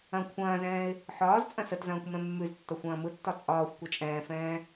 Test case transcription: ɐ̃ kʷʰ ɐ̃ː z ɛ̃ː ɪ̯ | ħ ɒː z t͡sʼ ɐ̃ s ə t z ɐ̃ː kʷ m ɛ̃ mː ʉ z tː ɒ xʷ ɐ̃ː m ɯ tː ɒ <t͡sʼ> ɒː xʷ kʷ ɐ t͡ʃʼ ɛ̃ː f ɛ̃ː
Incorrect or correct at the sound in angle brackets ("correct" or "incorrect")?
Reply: correct